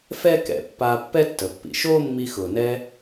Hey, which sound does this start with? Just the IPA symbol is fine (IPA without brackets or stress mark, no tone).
f